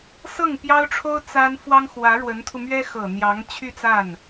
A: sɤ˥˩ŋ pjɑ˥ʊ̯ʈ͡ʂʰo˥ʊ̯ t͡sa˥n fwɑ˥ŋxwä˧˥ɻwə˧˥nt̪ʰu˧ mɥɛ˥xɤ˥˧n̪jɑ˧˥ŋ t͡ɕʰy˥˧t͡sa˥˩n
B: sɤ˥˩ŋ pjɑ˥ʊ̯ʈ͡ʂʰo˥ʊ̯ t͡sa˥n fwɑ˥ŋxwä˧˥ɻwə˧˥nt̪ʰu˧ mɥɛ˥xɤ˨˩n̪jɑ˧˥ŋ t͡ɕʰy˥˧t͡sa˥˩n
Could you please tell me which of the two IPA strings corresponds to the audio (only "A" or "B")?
B